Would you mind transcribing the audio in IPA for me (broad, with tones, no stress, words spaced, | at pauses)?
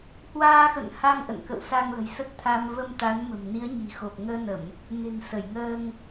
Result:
hwaː˧xə̰˧˨n ha˧ŋʔə̰˧˨nkə̰˧˨w sa˧ŋlə̤˨˩jsə˦˥t̚t̪ʰaː˧m və˧mt̪a˨˦n mə̤˨˩mni˨˦ə̯ɲi̤˨˩xo˨˩p̚ ŋəː˧nə˧˩˨m | ne̤˨˩nsə˧˩jŋəː˧ŋ